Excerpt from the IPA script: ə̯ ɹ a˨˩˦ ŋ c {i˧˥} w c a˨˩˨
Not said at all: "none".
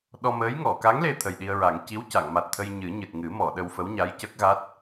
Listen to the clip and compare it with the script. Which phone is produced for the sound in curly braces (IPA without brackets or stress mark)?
i˧˥